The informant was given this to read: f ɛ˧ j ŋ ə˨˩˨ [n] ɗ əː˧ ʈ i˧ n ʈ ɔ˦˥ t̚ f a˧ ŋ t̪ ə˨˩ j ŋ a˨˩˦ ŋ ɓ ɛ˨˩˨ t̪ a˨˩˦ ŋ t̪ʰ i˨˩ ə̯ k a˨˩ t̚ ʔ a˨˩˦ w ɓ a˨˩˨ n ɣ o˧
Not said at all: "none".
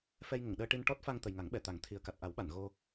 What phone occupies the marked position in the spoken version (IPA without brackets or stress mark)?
ŋ